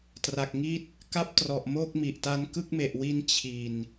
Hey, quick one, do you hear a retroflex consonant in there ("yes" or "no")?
no